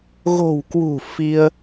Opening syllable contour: low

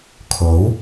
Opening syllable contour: rising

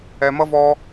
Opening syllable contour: low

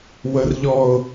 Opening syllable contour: low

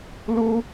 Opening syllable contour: high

